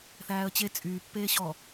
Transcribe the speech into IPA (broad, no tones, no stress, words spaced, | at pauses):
θæːə̯t͡ɕe t͡sʼyː pːeːɕɔ